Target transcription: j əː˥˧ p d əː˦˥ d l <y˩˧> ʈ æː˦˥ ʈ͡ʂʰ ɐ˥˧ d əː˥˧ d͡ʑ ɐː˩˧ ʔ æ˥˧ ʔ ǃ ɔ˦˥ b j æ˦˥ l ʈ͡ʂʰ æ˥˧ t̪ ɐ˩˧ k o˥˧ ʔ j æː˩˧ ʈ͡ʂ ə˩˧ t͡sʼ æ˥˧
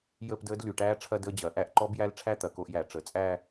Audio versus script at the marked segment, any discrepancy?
no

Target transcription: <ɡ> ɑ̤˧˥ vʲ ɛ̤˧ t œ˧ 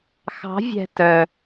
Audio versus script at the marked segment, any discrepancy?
yes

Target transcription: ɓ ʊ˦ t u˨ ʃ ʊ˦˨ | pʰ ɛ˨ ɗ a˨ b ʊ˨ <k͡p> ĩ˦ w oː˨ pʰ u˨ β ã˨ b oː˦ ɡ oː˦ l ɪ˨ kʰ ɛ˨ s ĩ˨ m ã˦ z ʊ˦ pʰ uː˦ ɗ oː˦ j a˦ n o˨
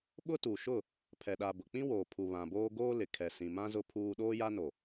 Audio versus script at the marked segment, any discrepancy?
no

